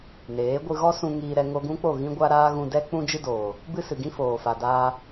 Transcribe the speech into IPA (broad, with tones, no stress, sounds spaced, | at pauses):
n eː˨˦ ɡʷ ɨ˧ ɣ ɔ˦ s ũ˧ ŋ iː˧ ɾ ɛ˧ ŋ o˧ ɡ ũ˦ k͡p o˦˨ ɣ ĩ˦ ɡʷ a˦ ɾ aː˦ ɣ ũ˧ d ɛ˦ k͡p ũ˦ d͡ʒ ɨ˦ d oː˨ | b ɨ˦ s ɨ˨ ɡ ĩ˦ f oː˨ f a˨ d aː˧